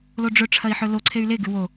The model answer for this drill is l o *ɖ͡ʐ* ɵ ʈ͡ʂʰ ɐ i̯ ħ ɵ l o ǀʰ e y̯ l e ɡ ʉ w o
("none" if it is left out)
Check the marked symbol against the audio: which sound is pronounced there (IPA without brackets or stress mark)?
ɖ͡ʐ